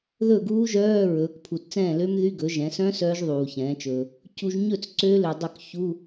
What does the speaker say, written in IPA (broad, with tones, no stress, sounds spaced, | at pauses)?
ð ɵ˥˩ ɡ uː˦˥ ʒ œː˧˥˧ ɹ ɵː˩˥ k pʰ u˨ t t͡s ɛ̃ː˥˩ l ø˦˥ m ð y˧˥˧ ɡ ɵ˩˥ ʒ ɛ̃˩˥ s œ̃˦˥ s œː˦˥ ʒ ðˤ uː˨ ç ɛ̃ː˩˥ t͡ʃ ɵː˨ | c u˨ ʒ ɲ ɵ˥˩ t͡s ǀ øː˦˥ l ø˨ dˤ ø˥˩ k ç u˧˥˧